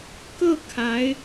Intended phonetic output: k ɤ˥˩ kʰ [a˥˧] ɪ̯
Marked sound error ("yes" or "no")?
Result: yes